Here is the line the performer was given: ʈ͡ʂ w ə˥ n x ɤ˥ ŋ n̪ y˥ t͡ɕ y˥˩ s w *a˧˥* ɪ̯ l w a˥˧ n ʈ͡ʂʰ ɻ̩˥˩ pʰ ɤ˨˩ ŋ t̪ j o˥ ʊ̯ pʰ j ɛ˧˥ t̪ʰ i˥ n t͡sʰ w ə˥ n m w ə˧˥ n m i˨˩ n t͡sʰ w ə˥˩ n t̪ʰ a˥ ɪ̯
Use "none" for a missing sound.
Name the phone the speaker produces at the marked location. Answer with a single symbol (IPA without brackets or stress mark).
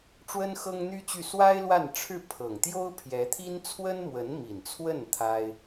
a˥